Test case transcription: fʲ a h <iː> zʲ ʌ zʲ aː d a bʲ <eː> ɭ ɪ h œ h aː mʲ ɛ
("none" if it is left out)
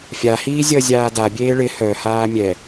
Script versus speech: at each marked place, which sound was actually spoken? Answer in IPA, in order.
iː, eː

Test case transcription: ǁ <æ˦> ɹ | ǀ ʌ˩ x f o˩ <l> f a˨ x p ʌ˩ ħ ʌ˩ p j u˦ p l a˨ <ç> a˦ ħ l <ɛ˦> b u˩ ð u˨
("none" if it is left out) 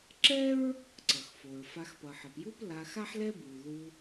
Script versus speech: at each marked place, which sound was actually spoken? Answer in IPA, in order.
ɛ˦, ɹ, x, ɛ˦

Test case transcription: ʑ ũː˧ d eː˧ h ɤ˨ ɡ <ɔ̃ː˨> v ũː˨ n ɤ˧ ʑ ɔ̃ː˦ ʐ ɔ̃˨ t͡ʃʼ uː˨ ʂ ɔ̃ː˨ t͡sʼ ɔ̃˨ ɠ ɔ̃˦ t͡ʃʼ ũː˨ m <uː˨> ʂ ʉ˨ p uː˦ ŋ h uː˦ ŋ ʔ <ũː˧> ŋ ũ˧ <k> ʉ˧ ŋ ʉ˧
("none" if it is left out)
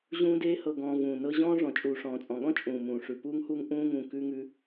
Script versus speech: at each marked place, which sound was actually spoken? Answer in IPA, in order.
ɔ̃ː˨, ũː˨, ũː˦, k

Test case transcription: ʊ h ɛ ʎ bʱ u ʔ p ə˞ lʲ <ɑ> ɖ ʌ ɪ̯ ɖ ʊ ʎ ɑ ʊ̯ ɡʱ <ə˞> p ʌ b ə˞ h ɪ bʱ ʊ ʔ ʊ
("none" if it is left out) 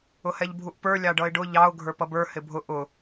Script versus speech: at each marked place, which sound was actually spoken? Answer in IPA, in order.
ɑ, ə˞

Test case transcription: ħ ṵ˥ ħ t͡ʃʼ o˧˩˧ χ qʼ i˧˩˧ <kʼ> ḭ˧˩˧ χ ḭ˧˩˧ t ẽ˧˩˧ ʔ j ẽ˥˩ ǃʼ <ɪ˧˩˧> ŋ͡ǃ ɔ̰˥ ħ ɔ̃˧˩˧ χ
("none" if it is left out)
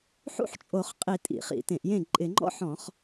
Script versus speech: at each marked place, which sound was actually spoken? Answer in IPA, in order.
tʼ, ɪ˧˩˧

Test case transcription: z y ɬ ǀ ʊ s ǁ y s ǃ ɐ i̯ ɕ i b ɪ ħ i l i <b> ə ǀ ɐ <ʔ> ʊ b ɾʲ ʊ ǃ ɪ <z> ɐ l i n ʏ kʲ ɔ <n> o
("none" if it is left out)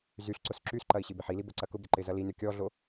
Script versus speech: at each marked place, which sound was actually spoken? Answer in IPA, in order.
b, k, z, ɮ

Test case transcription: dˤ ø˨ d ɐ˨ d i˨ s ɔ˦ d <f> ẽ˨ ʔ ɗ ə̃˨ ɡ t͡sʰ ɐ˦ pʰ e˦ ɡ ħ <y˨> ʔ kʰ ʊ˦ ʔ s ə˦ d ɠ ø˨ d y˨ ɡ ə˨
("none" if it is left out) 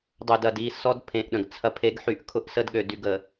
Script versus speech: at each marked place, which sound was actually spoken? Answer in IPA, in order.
pʰ, y˦

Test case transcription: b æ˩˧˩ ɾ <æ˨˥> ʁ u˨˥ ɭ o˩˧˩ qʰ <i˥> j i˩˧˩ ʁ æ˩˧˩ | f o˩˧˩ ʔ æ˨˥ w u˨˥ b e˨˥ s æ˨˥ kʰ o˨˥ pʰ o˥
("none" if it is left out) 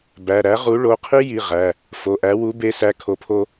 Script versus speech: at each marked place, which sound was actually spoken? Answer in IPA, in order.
æ˨˥, i˥

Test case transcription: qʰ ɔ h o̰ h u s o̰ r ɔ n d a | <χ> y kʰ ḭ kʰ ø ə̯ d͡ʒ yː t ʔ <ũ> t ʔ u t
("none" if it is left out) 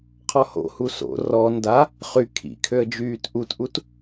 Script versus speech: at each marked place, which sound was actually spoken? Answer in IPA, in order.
χ, u

